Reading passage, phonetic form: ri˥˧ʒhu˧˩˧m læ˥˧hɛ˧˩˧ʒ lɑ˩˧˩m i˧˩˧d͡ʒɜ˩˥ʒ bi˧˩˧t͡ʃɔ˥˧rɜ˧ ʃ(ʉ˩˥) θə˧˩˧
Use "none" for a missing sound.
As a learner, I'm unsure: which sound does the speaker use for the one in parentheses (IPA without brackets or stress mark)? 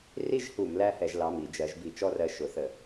ʊ˩˥